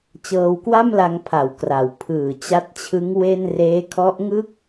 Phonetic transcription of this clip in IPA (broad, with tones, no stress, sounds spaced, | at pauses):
t͡ɕ ɤː˧ w k w a˥˩ m l a˧ ŋ pʰ a˩˦ w k r a˩˦ w pʰ ɯː˨˩ t͡ɕ a˦˥ t̚ t͡ɕʰ ɯ˦˥ ŋ w e˥˩ n r eː˦˥ kʰ ɔ˦˥ ʔ ŋ ɯ˥˩ k̚